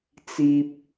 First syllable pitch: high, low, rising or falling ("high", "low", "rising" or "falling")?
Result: high